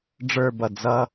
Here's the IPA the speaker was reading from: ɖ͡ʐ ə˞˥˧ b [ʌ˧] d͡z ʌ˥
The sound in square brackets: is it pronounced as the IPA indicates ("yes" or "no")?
no